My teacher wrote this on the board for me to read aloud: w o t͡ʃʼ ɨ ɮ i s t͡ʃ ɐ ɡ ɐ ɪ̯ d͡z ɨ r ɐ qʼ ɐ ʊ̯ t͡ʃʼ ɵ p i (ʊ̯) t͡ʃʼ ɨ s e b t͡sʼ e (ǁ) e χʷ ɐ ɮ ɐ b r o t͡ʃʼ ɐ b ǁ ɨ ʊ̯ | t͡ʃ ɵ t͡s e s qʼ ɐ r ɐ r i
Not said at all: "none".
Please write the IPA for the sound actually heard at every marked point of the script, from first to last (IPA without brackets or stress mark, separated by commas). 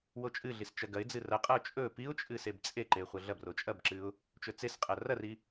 ʊ̯, ǃ